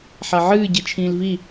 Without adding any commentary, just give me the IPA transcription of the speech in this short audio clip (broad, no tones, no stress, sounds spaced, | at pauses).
ħ a ʕ ɨː ɟ i t͡ʃʰ ĩː l v i